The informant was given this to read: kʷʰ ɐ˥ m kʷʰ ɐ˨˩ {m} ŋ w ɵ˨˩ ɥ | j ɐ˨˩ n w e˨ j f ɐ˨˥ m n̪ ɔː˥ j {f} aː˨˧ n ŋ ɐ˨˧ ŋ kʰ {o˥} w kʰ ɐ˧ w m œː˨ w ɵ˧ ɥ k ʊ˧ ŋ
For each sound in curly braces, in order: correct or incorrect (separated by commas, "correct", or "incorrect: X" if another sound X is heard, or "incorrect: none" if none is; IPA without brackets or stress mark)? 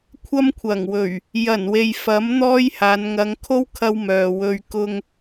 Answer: incorrect: none, incorrect: h, correct